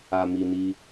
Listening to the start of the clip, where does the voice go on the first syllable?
low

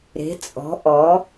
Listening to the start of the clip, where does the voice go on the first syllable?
rising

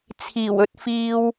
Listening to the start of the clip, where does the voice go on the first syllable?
low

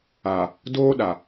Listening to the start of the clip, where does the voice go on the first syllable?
low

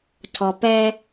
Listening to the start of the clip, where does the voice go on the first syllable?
low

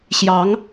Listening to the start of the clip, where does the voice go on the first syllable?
rising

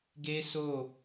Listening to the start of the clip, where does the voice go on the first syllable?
high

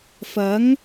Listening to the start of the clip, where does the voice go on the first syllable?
rising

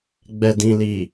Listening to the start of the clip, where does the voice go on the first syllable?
low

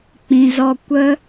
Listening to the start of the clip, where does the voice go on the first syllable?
low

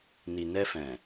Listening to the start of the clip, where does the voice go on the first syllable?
low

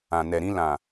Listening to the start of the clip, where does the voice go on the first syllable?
low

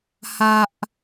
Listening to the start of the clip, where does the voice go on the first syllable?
low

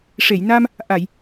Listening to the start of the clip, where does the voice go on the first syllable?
low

